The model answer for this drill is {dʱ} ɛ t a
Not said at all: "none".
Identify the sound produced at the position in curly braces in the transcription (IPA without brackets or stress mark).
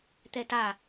t̪